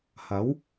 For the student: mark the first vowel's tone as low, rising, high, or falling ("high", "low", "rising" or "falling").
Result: rising